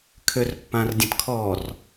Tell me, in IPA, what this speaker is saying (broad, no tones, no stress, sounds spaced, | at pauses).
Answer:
kʰ ø r pː ã r dʲ ə̃ t kʰ ɔ r